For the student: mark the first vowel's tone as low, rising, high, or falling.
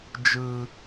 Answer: high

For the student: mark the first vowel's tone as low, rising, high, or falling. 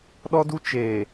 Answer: high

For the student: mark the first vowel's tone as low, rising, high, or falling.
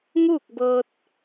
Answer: falling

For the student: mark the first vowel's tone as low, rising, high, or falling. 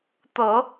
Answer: low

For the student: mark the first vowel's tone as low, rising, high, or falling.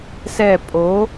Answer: falling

